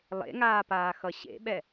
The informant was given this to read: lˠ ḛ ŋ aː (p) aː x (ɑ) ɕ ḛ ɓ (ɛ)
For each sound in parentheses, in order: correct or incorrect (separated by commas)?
correct, incorrect, correct